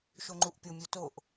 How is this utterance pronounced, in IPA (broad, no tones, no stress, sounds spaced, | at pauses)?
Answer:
ʃ o ŋ͡ǃ u ʔ pʲ o mʲ o t o ʔ